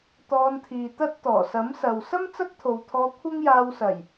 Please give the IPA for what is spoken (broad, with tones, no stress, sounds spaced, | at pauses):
t̪ ɔː˧ n t̪ʰ iː˨ t̪ ɐ˥ t̚ t̪ ɔː˨˩ s ɐ˨˥ m s ɐ˨ w s ɐ˥ m t͡s ɐ˥ k̚ t̪ʰ o˨ w t̪ʰ ɔː˧ kʷʰ ɐ˥ ŋ j aː˧ w s ɐ˨˩ j